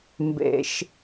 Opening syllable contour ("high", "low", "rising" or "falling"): low